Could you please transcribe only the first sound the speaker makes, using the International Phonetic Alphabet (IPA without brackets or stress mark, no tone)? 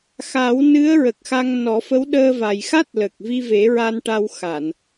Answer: x